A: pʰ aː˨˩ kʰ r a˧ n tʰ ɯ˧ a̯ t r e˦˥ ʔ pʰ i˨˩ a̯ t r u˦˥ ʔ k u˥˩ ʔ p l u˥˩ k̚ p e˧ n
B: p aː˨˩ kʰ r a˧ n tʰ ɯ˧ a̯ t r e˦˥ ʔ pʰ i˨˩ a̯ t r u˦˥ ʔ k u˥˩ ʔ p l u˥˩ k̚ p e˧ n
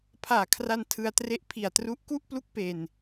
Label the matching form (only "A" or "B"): A